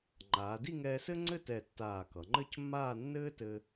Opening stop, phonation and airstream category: click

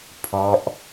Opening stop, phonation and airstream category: aspirated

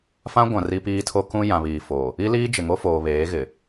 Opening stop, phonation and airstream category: plain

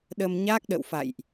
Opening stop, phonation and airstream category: implosive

